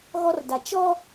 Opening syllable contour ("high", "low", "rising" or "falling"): high